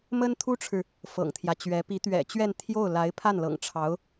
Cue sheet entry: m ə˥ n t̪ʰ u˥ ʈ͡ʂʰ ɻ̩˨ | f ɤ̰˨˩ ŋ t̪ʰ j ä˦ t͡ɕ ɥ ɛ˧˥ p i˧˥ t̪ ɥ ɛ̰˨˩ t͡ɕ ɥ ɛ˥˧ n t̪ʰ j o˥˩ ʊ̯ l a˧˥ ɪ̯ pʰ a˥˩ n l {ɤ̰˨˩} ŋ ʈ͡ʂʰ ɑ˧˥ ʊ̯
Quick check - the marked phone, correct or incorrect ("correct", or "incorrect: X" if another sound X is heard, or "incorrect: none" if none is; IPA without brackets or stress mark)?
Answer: correct